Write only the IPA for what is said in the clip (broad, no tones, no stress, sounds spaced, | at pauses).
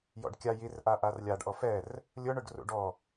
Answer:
j ɔ̰ ɖ kʲ a j i r ʔ a ʔ a r lʲ a ɖ ʔ ɔ f ɛ r | lʲ ʊ ɳ ʊ ɖ r ṵ ɖ ɔ